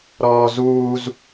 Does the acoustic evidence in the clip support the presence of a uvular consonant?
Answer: no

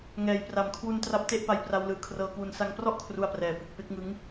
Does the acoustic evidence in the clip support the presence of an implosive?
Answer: no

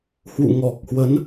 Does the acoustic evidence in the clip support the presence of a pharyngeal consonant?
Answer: no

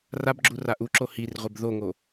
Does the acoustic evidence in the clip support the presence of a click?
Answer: yes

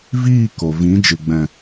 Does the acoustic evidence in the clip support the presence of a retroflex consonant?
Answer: no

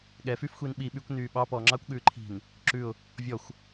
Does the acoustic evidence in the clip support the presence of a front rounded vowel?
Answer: yes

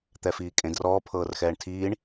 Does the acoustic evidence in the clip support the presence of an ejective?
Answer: yes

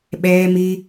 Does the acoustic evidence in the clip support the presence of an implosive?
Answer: yes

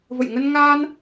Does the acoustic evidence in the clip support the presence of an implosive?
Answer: no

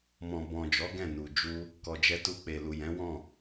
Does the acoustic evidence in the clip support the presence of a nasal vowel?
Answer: yes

